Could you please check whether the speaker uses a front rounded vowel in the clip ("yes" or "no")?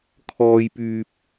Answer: yes